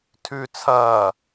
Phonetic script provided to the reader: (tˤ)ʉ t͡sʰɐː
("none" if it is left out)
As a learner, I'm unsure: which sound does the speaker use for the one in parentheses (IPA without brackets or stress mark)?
tʰ